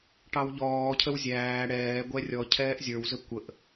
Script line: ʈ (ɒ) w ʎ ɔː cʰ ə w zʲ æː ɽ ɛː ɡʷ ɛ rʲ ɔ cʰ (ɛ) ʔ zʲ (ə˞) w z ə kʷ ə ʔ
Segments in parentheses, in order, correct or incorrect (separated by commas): incorrect, incorrect, correct